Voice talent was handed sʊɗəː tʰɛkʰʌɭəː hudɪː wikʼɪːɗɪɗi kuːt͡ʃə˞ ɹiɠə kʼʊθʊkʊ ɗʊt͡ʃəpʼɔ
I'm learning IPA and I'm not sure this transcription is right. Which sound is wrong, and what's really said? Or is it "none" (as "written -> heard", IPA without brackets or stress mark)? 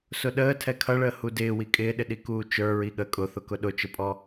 none